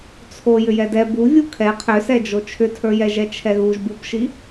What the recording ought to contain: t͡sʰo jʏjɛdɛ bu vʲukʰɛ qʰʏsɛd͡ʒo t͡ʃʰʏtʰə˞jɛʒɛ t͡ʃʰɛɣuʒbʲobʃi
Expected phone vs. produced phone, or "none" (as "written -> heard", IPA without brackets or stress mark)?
none